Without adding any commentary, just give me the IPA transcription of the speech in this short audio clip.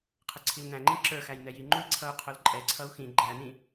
qʰ ə ǀʰ i l n æ̃ ŋ͡ǃ ĩ ǁ ə˞ x æ j n ɛ j i ŋ͡ǃ u i̯ ǀʰ ʌ u̯ qʰ ʊ l ǃʼ ɛ ǀʰ ʌ u̯ x ĩ ɡ͡ǃ æ n ĩ

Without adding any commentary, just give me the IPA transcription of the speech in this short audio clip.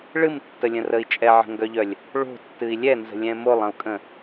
ɭ ɨ m tː ə lʲ ə̃ r ə i̯ t͡ʃʼ ɛ ʕ ə̤ ŋ ɡ œ ʎ œ lʲ | ɭ o̤ tː ɨ i̯ lʲ ɛ n z ə̤ lʲ ɛ̃ m o lˠ ə̃ u̯ kʼ ə̃

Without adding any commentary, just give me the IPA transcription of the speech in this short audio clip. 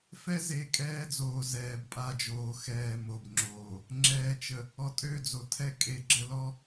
f ɛ˦ z e˨ kʼ ɛː˦ d͡z oː˨ z ɛː˨ b pʼ a˦˨ d͡ʒ oː˨ x ɛː˨ m o˨ b ŋ͡ǁ oː˨ | ŋ͡ǁ ɛː˨ t͡ʃ ə˨ | ɔ˨ tʼ ø˦˨ d͡z o˨ tʰ ɛ˦ kʼ e˨ ɡ͡ǁ ə˦ l ɔ˦

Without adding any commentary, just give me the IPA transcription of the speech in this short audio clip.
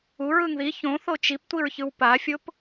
u ɹ ɯ ŋ ð i ç õ θ o t͡ʃ i p tʷ i ɹ ç ɯ w p a fʲ o p

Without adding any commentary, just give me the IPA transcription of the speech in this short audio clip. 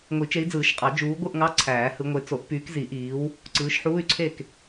ŋʷ i˨˩˦ t͡ʃ e˨˦ i̯ d͡z ɯː˨˩˦ ʃ qʼ ɑ˨˩˦ d͡ʒ uː˨˦ ɡʷ ɯ˥˨ ʔ ŋ ɑ˧˥˧ ǀʰ æː˨˩˦ h ɯ˨˦ ŋʷ e˨˦ t͡s o˨˩˦ ʔ p yː˨˦ k z i˨˩˦ ʔ iː˨˦ w | ǀ ɯː˨˦ ʃ ħ uː˧˥˧ y̯ ǀʰ e˥˨ k

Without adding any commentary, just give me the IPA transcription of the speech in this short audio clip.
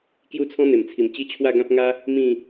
k j u˦ t͡sʰ ɔ̃˦ n̪ e˨˩ m t͡sʰ i˨˩ m t͡ɕ i˦ t͡ɕʰ w a˥˧ ɡ ã˦ p̚ ŋ a˦ | m ĩ˥˧

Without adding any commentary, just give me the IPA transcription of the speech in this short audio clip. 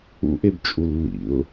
ṵ ʔ e b t͡ʃʼ u lː ḭ ʊ̯

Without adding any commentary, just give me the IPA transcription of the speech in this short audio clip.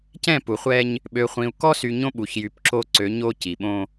c ɛ̃˦˨ p u˨ χʷ ɛ˦ ɲ | ɓ ø˨ χʷ ĩ˨ u̯ k ɔ˦ s y˨ ɲ õ˦ ɓ u˨ ç j y˨ p ǁ o˦ ǀ ø˨˦ ɲ o˦ c i˨ ɓ õ˦

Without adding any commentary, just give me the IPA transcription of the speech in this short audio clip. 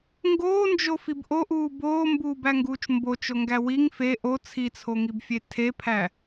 ŋ ɡ oː n d͡ʒ o f i b ʔ o ʔ uː b oː m b uː b æ ŋ ɡ uː t͡ʃ m b o t͡ʃ o ŋ ɡ æ w i ŋ f e ʔ o t͡sʰ i t͡sʰ o ŋ i b fʲ e tʰ e pʰ æ

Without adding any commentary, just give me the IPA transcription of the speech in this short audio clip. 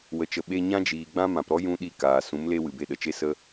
w ə˨ t͡ʃ ə˨ ɓ e˧ ɲ ã˦ d͡ʒ iː˨ ɡ͡b ã˦ m ã˨ p ɾ ɔ˦ j ũ˦ ɗ i˦˨ k aː˨ s ũ˨˦ m l e˦ w ɨ˨ b e˧ ɗ ə˨ t͡ʃ e˦ s ə˦

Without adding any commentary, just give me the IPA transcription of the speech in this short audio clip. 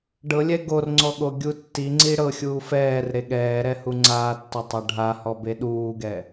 ɖ ɤ lʲ ɛ ɡ o r ŋ͡ǀ ɔ ɠ o ɡʲ u tː i ŋ͡ǀ i ɽ ɤ xʲ uː f ɛː r ɾ e ɠ ɛː ɾ ɛ h u ŋ͡ǀ aː tː o tˤ a ɖʱ a h ɔ b e ɗ uː ɡ ɛ

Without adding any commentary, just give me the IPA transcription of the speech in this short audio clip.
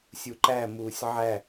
sʲ u ǃ æ m uː sʲ ʕ æ

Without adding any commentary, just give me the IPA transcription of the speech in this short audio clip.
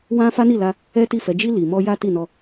w ã˦ f a˦ n i˦˨ l a˧ | ɛ˦ t i˦˨ f ɛ˨˦ d͡ʒ i˧ l i˨ m ɔ˧ j a˦ t i˦˨ n ɔ˧

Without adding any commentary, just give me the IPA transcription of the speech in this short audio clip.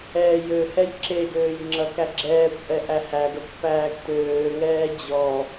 ɛː j ø h ɛ j ǁ e ɡ øː j ŋ͡ǁ ɐ k æ ɡ͡ǁ ɛː kʷ ʔ ɛ ʔ æ h æ ɡ ɐ kʷ p æː ɡ t øː ŋ ɛː d͡ʑ ɔ

